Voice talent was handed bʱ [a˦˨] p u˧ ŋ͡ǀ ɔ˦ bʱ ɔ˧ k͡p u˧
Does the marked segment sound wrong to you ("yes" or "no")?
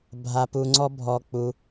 yes